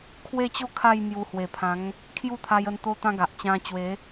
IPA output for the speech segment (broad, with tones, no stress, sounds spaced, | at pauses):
kʰ w e˥˧ t͡ɕ o˥˧ kʰ a˥˧ j m j u˧ h w e˨˩ pʰ ã˨˦ ŋ | kʰ j u˥˧ t̪ʰ a˧ j ə˧ n t̪ o˦ t̪ ã˦ ɡ a˨ ʔ t͡ɕ ã˧ t͡ɕ w e˨˦